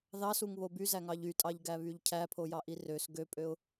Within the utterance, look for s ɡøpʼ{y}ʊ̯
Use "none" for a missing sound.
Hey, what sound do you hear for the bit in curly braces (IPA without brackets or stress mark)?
ø